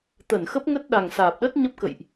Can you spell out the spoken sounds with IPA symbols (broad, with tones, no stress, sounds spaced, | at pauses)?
t̪ ə˧˩ n x ə˦˥ p̚ ŋ ə˦˥ t̚ ɗ a˨˩ ŋ s aː˨˩ p̚ ɗ ə˦˥ t̚ ɲ ə˦˥ p̚ k ə̰˧˨ j ʔ